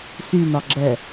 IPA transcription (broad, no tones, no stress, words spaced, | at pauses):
synɒɡ͡ǁɛ